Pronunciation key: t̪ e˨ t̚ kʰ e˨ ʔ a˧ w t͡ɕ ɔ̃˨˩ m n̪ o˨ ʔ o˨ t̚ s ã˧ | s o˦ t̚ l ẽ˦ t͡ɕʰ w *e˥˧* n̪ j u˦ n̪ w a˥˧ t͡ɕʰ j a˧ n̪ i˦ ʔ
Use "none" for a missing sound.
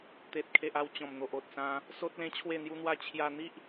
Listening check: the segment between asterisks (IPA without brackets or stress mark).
e˥˧